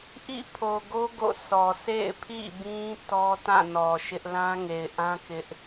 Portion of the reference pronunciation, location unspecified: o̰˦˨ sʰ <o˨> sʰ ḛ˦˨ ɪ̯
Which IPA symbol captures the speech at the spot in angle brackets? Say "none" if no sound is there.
ɔ˨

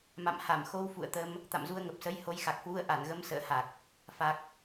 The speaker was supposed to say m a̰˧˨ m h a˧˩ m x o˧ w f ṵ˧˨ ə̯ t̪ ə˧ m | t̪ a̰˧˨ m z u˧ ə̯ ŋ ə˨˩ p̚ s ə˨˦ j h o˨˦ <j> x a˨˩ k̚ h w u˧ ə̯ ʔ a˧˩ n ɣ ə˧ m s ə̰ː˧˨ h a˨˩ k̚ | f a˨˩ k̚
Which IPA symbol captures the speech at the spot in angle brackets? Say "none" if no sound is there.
j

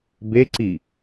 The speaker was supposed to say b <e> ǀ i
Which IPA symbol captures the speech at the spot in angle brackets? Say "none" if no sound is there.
e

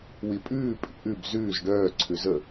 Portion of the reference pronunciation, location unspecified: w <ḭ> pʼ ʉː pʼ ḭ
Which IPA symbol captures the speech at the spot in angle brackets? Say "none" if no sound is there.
i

